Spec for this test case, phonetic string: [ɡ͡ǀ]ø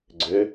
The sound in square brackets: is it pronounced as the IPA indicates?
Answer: yes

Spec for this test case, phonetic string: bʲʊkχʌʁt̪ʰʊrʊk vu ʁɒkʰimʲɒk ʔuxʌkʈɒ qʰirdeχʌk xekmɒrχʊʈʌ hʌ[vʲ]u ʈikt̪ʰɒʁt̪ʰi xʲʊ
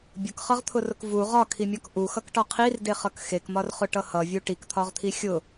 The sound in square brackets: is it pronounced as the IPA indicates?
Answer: yes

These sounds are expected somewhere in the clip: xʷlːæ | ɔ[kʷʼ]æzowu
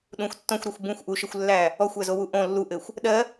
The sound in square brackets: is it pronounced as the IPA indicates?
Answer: no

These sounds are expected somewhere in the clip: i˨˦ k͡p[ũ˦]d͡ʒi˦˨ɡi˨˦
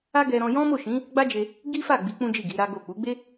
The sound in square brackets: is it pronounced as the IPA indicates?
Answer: yes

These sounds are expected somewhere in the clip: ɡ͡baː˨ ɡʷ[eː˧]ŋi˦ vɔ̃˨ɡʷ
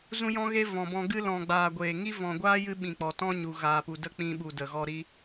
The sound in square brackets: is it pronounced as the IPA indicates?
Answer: no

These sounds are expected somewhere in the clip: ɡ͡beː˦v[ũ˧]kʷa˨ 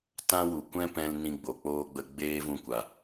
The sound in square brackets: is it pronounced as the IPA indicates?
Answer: yes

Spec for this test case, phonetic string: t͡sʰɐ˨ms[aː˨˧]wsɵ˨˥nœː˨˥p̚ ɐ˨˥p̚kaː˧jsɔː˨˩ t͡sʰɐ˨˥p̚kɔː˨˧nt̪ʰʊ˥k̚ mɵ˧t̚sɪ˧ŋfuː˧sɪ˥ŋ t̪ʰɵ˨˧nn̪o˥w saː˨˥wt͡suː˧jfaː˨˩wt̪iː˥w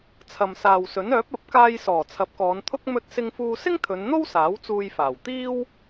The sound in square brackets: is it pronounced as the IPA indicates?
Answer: no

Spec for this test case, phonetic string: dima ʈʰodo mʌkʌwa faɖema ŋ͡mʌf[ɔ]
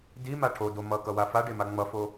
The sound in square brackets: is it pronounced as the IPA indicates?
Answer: no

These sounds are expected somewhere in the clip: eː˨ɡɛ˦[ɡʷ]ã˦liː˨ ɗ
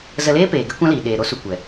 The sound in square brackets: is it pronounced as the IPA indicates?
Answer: no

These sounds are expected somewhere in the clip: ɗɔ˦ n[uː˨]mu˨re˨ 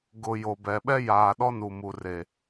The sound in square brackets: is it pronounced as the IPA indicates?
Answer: no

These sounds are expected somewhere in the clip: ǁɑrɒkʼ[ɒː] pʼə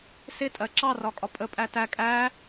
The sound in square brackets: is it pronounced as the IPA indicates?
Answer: no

